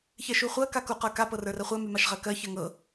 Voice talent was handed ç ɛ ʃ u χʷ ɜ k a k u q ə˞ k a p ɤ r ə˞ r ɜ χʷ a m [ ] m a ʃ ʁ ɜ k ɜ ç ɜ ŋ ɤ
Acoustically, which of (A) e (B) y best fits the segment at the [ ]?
B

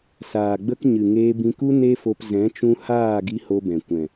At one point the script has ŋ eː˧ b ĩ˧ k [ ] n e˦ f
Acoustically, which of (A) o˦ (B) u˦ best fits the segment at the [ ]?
B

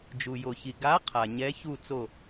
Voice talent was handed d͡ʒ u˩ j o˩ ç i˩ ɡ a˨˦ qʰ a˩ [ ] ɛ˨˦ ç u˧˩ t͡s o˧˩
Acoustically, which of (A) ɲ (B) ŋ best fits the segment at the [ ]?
A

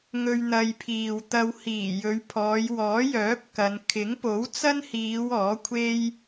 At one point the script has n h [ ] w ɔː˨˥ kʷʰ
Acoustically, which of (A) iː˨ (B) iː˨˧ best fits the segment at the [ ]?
B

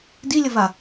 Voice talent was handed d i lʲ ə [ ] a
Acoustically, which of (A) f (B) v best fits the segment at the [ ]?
B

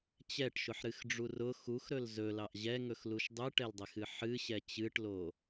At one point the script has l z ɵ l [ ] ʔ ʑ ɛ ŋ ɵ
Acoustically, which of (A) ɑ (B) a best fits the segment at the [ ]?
A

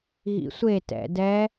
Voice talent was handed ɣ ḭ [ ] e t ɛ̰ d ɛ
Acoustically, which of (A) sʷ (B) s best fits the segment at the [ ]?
A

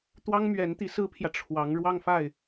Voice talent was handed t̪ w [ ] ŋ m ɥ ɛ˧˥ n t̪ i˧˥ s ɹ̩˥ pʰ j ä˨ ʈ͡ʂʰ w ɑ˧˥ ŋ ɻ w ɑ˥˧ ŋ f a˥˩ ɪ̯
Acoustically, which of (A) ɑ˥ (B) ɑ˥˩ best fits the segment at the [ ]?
A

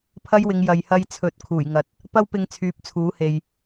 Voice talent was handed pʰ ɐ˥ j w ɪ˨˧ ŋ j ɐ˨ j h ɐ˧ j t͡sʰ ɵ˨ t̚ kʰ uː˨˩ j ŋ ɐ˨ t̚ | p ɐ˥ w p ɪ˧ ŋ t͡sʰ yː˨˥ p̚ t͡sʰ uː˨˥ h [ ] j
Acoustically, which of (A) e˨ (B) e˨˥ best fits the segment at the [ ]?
A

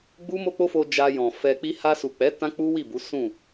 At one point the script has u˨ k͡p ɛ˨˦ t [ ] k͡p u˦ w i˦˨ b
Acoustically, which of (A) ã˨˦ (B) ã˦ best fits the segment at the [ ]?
B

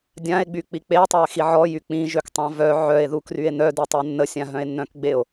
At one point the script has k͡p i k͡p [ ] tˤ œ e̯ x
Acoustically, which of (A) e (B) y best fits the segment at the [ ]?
A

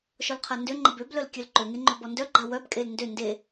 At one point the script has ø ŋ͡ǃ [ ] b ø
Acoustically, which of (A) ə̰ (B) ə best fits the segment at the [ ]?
B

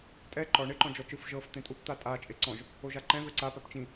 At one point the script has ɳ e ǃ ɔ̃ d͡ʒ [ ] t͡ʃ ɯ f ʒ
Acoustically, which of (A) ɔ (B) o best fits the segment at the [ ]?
A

